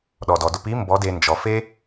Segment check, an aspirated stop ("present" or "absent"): absent